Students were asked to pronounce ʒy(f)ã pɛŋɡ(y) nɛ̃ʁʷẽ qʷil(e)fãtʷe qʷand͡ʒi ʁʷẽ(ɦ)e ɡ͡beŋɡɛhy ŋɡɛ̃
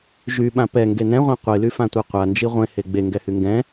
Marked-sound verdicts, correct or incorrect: incorrect: ɓ, incorrect: e, incorrect: y, incorrect: h

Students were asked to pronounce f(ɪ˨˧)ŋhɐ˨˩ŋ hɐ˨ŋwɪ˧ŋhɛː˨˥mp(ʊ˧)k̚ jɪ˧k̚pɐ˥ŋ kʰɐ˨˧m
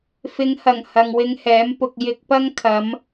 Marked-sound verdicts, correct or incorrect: correct, correct

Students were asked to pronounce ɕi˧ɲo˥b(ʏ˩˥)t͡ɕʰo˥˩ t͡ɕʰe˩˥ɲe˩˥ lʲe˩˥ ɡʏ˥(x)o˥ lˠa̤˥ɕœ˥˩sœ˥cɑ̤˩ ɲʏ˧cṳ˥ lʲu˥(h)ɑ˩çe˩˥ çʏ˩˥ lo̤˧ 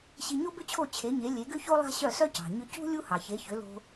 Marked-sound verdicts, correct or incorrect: incorrect: ʏ˥, incorrect: ç, correct

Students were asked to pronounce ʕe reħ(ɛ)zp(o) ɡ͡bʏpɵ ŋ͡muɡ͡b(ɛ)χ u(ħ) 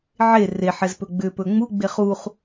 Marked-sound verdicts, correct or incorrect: correct, incorrect: ɵ, incorrect: e, incorrect: χ

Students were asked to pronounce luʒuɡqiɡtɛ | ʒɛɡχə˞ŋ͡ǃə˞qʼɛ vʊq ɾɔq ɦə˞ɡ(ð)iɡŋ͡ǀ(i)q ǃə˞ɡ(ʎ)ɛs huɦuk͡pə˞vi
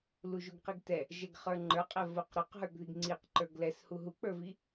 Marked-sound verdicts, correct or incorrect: correct, correct, incorrect: l

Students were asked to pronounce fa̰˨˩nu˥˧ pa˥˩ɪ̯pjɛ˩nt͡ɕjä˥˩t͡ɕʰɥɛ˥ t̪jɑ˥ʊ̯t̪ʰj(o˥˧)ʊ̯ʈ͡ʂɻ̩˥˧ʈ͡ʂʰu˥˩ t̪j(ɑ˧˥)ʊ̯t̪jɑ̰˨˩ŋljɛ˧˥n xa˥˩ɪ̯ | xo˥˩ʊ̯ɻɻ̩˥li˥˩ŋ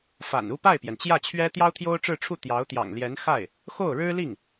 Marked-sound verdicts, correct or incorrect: incorrect: o˥, correct

